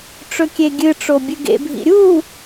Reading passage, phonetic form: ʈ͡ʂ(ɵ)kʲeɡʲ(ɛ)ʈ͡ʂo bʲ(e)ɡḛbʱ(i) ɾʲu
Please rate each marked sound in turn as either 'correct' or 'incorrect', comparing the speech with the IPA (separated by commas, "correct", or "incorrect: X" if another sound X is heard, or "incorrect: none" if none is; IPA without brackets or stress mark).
correct, incorrect: ɨ, incorrect: ɨ, incorrect: ḭ